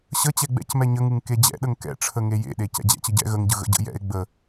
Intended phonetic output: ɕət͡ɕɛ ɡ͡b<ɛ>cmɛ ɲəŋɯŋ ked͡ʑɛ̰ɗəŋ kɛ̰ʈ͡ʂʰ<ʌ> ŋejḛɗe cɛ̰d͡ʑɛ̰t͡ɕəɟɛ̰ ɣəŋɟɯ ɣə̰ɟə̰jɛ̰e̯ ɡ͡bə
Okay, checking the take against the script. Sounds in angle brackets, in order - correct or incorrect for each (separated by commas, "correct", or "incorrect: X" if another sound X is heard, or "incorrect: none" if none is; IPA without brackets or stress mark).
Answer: incorrect: ɛ̰, incorrect: ə